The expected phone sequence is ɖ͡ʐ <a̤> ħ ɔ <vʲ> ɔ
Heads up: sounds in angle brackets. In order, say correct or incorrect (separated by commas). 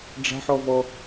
correct, incorrect